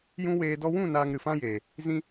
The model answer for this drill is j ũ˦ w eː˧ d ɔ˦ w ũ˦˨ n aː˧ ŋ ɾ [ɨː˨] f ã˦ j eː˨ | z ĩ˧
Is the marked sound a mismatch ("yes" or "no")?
yes